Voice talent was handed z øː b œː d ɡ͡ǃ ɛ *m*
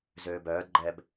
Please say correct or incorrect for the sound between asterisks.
incorrect